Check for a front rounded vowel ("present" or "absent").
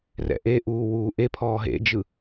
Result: absent